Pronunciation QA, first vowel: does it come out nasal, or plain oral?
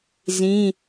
nasal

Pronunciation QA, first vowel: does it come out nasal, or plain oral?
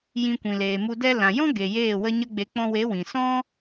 nasal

